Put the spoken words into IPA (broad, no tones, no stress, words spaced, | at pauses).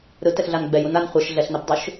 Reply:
ɾɯtɛxɮan ɡ͡bɛjun an χʷɛʃ ɮɛɬnɛbdˤɯʃ